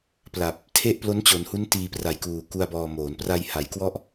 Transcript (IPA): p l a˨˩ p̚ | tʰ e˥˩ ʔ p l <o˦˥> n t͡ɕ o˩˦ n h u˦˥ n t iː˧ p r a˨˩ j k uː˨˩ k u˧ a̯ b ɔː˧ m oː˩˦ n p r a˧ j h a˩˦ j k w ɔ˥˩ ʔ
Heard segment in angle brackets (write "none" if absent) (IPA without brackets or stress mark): o˦˥